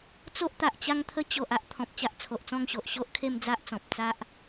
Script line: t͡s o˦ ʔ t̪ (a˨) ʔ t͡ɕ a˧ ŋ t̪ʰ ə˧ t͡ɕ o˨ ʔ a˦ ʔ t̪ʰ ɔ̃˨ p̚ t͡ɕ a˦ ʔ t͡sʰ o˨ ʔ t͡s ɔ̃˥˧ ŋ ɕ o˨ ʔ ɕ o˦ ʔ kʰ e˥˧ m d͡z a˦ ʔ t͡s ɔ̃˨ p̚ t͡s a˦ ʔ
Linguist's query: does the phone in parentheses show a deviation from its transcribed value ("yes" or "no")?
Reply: no